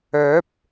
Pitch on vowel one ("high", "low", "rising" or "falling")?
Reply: rising